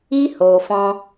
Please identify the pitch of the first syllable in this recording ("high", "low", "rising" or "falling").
high